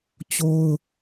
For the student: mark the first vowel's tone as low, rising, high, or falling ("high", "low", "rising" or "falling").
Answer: high